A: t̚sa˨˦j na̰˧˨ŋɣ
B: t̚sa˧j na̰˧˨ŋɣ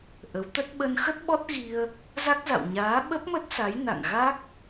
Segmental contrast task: A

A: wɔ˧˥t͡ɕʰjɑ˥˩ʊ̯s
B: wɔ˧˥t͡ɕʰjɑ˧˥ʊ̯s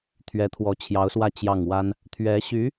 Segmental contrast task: B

